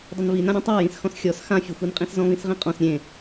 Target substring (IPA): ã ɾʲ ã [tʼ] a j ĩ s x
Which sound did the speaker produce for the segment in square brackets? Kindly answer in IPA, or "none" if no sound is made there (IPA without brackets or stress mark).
tˤ